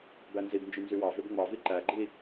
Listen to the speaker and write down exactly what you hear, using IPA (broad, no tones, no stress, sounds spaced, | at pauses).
b æ n z i b n d͡ʒ y n z y w ɑ v ø b ŋ͡m ɑ v i ǃ æ ɡ͡ǃ i